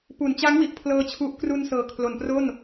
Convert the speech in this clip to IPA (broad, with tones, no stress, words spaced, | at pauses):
pu˩˦nt͡ɕa˦˥ŋwi˨˩ʔpʰlɤː˧ t͡ɕʰu˦˥ʔ kru˧n sɤː˨˩kʰlo˨˩npro˥˩n